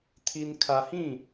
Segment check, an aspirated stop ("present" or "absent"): present